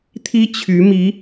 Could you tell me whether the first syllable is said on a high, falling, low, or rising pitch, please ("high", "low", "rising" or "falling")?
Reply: high